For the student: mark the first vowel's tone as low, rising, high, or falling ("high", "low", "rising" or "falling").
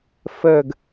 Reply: falling